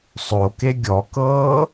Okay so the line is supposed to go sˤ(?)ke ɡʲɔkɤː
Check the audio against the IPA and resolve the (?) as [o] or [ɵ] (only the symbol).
o